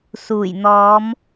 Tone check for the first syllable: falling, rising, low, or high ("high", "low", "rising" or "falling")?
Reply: low